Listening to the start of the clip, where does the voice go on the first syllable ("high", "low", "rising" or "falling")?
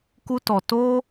high